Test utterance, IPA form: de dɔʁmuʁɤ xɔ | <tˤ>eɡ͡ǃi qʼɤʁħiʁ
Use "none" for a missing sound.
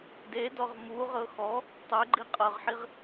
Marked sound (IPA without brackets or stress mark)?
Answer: tˤ